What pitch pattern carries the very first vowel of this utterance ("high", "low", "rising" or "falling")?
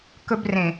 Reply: high